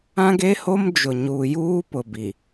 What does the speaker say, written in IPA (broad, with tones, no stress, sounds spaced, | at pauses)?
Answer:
ã˦ ɡ e˦ h o˦ m d͡ʒ ʊ˨ ɲ uː˨ j uː˦ p ʊ˨ b i˨